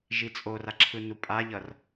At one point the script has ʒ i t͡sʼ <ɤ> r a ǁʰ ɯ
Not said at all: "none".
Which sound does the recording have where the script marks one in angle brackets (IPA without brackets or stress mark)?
o